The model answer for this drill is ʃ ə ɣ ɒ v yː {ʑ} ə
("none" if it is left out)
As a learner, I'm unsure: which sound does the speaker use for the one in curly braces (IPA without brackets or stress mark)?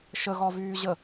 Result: ʑ